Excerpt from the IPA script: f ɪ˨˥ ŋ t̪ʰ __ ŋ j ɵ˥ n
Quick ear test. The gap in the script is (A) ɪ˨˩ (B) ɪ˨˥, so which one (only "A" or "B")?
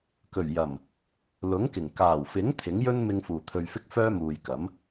B